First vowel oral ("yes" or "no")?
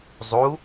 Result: yes